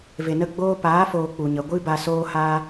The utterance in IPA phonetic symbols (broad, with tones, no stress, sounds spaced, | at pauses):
v e˨ n ə˦˨ ɡ͡b oː˧ p aː˨˦ f oː˨ k͡p u˨ ɲ ə˨ ɡʷ ɨ˦ b a˧ s oː˧ h aː˧